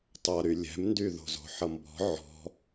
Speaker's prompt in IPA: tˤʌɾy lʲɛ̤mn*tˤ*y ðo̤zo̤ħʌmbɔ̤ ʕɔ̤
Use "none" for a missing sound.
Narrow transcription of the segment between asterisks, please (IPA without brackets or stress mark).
d